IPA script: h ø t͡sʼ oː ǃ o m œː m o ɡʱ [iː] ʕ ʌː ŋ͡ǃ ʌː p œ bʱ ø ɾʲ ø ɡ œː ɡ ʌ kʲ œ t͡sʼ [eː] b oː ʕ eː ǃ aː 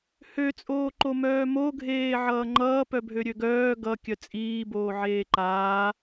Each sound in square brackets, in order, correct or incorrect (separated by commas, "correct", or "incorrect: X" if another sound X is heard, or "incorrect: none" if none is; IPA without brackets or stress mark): incorrect: eː, incorrect: iː